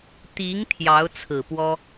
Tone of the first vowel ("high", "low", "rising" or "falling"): rising